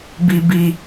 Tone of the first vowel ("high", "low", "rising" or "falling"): low